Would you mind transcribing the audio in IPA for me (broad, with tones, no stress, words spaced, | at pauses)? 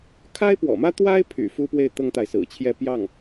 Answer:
kʰa˥ɪ̯pwɔ̰˨˩mä˥ t̪wa˥ɪ̯pʰy̰˨˩ fu˥pwe˥˩ɪ̯ t̪ɤ˥ŋt̪a˨ɪ̯sɹ̩˨˩t͡ɕʰjɛ˥˧ pjɑ˥˩ŋ